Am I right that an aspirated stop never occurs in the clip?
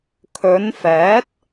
no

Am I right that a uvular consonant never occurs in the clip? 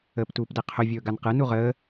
no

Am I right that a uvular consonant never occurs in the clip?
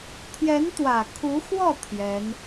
yes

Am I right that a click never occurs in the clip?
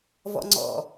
no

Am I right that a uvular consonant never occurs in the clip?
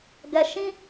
yes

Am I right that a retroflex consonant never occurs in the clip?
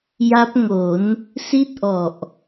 yes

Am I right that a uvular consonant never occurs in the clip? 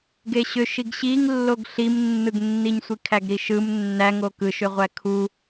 no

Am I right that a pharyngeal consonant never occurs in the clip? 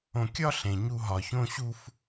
yes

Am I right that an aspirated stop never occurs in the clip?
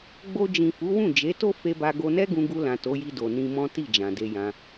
yes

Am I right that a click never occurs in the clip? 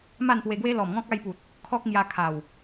yes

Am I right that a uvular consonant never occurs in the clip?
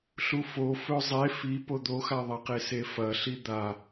no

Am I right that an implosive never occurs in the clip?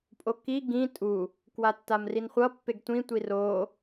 yes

